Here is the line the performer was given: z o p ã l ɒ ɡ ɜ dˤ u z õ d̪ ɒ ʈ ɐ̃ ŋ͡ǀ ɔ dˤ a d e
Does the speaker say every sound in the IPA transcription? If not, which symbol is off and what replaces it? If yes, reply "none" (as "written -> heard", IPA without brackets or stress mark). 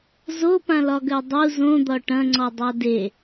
none